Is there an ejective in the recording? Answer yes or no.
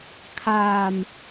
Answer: no